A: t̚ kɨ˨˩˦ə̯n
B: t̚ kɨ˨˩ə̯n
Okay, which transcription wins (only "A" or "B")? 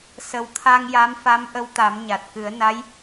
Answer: A